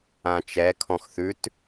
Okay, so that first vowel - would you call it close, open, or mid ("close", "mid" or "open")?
open